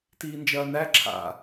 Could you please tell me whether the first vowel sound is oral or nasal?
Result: oral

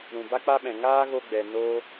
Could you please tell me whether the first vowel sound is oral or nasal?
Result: nasal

